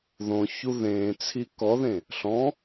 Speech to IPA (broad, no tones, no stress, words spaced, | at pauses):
ðõçu ðẽːt͡sʰi kɔðẽ | ɬɔ̃